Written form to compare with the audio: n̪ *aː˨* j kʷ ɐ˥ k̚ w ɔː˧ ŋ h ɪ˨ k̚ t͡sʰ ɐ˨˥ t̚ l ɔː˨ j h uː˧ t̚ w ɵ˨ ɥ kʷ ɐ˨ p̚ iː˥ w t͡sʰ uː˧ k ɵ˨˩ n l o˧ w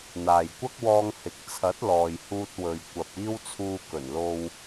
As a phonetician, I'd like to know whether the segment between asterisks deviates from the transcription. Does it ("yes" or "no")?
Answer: no